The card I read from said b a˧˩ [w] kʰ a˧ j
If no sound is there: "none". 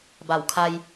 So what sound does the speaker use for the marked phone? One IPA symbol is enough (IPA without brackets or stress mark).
w